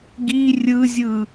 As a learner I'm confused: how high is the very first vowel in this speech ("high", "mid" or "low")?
high